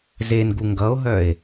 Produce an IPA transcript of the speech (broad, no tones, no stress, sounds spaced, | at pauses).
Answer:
z e n ɡ u ŋ ɡ ʌ o̯ ɦ œ e̯